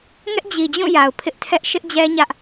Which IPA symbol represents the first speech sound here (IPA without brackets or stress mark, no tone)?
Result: ŋ